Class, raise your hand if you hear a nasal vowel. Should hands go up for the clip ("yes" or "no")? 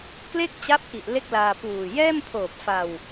no